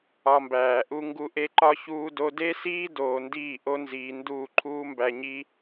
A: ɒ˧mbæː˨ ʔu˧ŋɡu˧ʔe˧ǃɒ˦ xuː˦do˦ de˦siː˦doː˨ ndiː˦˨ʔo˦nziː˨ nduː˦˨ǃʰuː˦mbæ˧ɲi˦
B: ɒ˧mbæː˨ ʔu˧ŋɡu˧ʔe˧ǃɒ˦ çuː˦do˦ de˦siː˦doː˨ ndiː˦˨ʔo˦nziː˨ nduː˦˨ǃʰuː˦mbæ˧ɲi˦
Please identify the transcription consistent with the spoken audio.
B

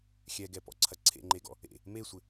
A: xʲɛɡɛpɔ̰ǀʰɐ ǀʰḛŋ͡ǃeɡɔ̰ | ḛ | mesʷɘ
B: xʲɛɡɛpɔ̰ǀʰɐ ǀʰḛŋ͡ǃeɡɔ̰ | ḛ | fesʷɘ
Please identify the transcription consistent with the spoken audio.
A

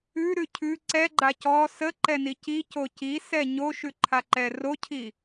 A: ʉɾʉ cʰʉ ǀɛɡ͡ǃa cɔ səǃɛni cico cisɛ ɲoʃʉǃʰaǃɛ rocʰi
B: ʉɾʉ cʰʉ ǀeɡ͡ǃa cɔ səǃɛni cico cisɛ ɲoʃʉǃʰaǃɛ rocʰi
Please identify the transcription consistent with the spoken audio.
A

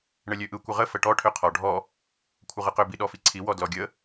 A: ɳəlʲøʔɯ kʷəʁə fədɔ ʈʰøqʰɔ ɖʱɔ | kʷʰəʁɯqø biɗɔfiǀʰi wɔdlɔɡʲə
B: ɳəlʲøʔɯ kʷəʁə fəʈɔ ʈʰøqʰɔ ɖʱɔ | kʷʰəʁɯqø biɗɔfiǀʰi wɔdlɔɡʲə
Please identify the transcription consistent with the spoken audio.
B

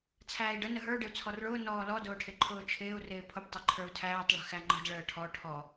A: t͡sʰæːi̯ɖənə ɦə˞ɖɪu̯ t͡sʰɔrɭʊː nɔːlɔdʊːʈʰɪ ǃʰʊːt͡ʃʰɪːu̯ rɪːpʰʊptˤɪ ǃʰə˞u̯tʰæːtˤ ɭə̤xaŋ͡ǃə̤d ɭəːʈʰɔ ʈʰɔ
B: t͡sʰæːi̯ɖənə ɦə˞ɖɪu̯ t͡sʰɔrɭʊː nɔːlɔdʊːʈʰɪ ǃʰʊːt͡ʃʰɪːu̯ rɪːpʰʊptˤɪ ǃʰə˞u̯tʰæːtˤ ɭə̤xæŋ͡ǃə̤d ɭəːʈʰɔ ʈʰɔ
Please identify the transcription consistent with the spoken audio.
B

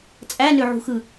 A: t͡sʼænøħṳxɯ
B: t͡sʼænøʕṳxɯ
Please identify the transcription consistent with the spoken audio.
B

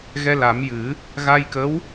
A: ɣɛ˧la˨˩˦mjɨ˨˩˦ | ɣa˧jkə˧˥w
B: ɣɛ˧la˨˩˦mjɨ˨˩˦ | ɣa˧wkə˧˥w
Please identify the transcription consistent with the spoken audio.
A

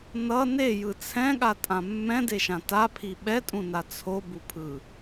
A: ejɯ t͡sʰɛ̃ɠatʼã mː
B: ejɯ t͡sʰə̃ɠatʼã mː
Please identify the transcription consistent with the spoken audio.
A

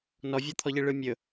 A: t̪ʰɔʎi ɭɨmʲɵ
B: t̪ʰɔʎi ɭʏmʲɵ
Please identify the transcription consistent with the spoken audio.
A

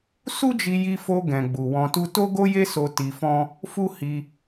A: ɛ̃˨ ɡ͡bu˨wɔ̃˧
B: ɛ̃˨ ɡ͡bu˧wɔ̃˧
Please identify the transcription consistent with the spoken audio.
A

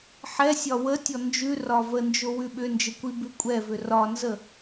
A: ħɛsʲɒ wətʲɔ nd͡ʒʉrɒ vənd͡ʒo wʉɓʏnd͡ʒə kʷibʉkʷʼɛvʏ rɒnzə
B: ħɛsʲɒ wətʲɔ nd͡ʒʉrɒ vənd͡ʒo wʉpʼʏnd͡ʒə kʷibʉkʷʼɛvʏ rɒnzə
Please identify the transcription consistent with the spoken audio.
A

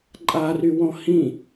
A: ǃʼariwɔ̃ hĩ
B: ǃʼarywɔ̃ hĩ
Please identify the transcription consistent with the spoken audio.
B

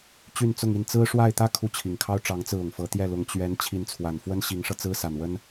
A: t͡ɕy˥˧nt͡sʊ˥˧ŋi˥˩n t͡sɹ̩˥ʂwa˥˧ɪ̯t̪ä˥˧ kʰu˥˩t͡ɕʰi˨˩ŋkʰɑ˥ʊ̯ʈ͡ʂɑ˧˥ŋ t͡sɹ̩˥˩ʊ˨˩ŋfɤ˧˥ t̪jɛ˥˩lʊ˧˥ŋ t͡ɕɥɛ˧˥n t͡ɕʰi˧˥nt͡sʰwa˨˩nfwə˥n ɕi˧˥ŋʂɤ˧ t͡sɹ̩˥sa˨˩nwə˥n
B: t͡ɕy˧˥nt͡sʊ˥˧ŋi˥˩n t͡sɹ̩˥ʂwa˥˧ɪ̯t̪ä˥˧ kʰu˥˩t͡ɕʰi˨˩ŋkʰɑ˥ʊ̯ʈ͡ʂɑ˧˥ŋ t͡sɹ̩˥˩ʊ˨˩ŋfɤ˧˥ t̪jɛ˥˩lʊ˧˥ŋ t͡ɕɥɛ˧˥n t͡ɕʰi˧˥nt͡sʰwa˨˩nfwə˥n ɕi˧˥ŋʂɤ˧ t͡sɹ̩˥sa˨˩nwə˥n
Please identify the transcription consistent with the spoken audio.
A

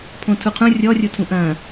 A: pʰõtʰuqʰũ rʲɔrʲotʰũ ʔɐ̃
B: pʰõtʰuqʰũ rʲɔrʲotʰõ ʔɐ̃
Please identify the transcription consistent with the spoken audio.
A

